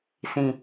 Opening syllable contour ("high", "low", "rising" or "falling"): falling